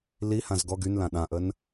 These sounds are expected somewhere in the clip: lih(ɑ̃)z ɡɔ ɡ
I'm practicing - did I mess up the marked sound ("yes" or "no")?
yes